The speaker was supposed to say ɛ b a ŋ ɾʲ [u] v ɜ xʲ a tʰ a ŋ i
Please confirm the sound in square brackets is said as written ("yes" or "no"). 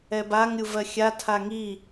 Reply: yes